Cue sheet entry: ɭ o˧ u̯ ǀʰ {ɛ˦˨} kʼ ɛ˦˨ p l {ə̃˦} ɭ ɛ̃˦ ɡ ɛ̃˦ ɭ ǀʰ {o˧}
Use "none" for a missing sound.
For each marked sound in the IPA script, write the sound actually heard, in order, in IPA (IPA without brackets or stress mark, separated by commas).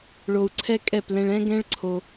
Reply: ɛ˦, ɛ̃˦, o˧